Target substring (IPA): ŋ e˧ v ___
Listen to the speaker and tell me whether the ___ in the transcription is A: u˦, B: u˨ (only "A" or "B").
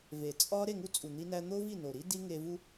A